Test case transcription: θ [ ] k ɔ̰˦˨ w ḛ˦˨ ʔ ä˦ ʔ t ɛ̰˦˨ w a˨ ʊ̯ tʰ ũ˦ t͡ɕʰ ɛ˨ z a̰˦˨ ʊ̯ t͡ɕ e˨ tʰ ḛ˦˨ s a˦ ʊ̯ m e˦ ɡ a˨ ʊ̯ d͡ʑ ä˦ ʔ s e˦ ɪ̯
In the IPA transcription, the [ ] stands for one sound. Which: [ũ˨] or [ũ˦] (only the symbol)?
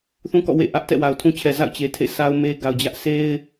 ũ˦